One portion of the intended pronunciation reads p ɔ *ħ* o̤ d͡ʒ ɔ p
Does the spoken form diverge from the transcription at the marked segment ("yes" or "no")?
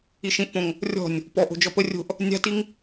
yes